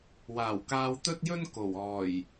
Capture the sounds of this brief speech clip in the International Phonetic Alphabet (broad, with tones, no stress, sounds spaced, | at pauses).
w aː˨˩ w k aː˧ w t̪ ɵ˥ t̚ j ɵ˥ n k o˨˩ w ɔː˨˩ j